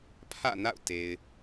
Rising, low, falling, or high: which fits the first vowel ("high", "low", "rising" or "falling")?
falling